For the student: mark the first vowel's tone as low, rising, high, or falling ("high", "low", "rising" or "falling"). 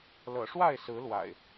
low